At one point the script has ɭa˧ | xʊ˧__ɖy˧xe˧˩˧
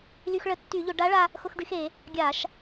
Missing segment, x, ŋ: x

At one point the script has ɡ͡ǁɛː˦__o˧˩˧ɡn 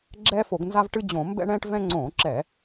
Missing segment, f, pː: f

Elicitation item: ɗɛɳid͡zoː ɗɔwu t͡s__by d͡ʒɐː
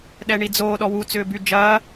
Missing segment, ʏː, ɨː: ʏː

